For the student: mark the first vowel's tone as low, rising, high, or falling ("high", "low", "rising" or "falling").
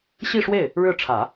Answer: falling